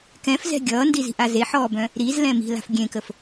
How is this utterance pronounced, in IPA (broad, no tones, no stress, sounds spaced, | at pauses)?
k ɛ̃ f z ɛ̤ ɡʲ ʌː n d i z i̤ ʔ a z e ħ ɔː b œ̃ | ɾ i z l ɛ̃ m i̤ l a̤ f ɡʲ ẽ k ə f